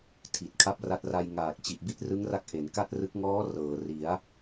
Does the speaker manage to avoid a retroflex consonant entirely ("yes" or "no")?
yes